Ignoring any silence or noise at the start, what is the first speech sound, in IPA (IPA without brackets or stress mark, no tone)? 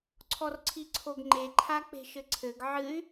ǀʰ